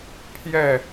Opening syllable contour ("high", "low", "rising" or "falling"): falling